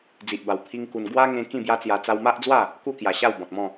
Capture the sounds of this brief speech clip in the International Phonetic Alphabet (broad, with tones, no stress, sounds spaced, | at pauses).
d͡z i˨ ʔ b a˨˩ w pʰ i˦ ŋ k u˧ n ɡ w a˦ ŋ ẽ˧ k ĩ˥˧ b j a˦ t͡s j a˧ t͡s a˦ w m a˦ ʔ d͡z w a˥˧ | k u˥˧ k j a˨˩ ɕ a˥˧ w b ɔ̃˨ t̚ m ɔ̃˥˧